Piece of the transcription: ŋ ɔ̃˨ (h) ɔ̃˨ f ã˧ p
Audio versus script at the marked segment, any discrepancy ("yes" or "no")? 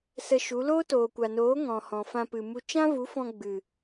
no